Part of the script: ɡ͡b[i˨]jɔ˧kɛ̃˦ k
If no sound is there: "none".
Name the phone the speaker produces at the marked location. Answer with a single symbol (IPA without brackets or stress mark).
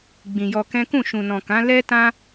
ĩ˨